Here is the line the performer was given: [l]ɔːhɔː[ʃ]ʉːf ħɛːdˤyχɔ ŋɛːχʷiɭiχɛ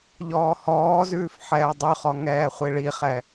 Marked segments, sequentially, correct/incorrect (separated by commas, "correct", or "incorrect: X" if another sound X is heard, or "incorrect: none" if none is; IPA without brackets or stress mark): incorrect: ʎ, incorrect: z